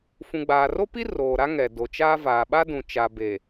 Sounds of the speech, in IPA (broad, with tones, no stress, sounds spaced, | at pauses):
f ũ˨ ɡ͡b aː˨ r o˦ p i˦ r oː˨ ɾ a˦ ŋ ɛ˨ d o˨ t͡ʃ aː˦ v aː˨ ɓ a˦ d ũ˨ t͡ʃ a˨ b e˨